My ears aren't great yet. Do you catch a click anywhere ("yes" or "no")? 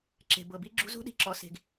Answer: yes